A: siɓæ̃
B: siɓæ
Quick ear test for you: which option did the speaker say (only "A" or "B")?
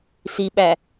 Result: B